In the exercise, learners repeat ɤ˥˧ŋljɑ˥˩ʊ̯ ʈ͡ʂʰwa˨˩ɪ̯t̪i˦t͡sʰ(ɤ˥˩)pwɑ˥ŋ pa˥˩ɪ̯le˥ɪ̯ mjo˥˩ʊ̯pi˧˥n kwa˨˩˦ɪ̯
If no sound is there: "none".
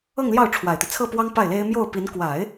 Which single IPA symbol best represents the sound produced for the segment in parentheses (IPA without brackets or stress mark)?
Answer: ɤ˥˩